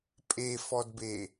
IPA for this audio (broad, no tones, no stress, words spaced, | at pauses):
pʼefɔdbe